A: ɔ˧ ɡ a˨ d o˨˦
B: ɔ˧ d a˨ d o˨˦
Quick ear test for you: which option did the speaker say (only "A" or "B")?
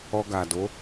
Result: A